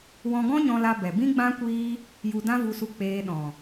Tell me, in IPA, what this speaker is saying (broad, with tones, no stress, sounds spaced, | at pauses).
w ɔ̃˧ ɡ ɔ̃˦ ɲ ɔ̃˧ l a˧ b ɛ˨ b ĩ˦ ɡ͡b ã˦ kʷ iː˦ | j u˧ d ã˦ v u˧ s u˧ k͡p eː˧ ɗ ɔ̃˨